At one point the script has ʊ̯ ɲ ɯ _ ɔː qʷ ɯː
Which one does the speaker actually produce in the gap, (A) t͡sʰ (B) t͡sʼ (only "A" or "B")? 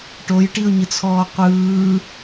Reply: A